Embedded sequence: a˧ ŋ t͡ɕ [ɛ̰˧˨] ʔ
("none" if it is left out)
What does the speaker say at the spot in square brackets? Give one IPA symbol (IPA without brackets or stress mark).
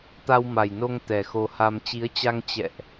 ɛ̰˧˨